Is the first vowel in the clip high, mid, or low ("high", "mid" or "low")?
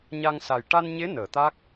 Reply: low